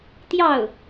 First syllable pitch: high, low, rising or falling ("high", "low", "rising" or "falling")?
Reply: falling